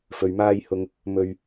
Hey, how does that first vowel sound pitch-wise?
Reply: low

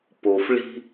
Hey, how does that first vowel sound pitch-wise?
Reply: low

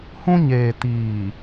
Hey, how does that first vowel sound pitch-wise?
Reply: high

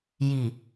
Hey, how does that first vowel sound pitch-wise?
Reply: low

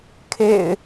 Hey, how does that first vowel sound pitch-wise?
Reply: low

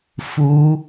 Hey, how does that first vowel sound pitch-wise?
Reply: high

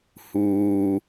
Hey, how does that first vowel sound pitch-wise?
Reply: low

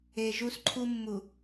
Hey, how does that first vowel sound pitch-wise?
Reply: low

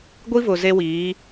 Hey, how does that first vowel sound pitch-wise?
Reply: high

